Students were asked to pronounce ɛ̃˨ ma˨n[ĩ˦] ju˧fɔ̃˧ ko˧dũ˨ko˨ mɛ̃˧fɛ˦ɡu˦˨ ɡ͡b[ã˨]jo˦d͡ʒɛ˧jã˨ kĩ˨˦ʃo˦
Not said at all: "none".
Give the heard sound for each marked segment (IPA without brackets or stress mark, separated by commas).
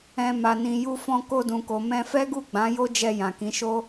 ĩ˨, ã˨˦